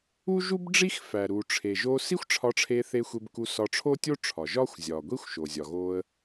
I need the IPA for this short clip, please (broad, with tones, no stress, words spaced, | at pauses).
u˥ʒu˥bɖ͡ʐi˥x fæ˩ ɾu˩ʈ͡ʂʰe˩ʒo˧ si˥xʷʈ͡ʂʰɒ˧ʈ͡ʂʰe˧θe˧ xʷe˧bku˧sɒ˧ ʈ͡ʂʰo˥tʲo˥ ʈ͡ʂʰɒ˩ʒɒ˥xʷ zʲɒ˩ɡʷi˥xʷ ʃo˩ zʲɒ˩ɣo˧ə̯